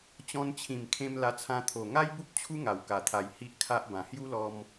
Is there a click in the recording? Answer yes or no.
no